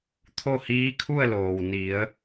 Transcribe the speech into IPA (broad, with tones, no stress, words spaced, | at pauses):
t̪ʰo˥˨hiː˧˥kʰu˥˨ə̯loː˩w ni˩˧ə̯